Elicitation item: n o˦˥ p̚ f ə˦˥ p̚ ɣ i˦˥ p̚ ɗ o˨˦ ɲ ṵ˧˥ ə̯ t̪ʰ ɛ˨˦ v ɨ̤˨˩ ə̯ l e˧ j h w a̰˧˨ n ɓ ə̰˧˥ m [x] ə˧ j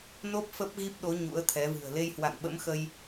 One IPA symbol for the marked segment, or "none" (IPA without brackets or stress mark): x